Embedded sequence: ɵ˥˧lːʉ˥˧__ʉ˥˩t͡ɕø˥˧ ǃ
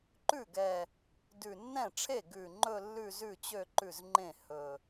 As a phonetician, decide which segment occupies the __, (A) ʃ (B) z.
B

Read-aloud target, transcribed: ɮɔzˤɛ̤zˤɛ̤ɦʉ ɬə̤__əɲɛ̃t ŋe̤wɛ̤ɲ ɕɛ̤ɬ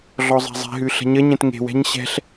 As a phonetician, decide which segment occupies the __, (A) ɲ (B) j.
A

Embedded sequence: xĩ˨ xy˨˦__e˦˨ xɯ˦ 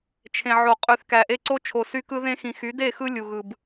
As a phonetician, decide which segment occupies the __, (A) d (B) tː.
A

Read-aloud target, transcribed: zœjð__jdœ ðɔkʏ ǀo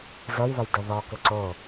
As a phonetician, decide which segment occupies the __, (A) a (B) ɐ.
B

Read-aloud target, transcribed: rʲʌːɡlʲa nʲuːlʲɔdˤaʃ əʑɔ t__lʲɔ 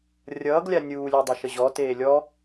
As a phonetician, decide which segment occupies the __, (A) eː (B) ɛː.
A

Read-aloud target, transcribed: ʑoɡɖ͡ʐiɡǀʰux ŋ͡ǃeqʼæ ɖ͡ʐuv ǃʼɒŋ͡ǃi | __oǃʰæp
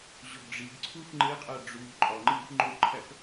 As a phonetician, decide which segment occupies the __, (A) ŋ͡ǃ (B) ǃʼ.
A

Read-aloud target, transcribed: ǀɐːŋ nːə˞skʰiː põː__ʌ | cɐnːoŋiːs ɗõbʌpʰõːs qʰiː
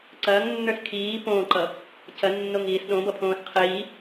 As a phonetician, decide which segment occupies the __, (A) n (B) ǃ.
B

